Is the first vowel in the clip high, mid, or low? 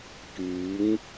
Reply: high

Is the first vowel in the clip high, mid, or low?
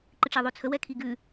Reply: high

